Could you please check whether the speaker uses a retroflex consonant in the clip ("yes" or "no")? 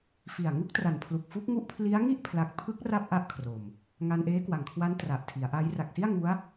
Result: no